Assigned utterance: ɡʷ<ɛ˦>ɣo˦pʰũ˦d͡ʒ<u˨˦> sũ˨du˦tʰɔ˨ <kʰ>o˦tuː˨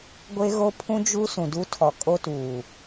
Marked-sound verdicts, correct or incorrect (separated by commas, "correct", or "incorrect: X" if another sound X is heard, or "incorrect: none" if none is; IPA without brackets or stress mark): incorrect: e˦, incorrect: u˦, incorrect: kʼ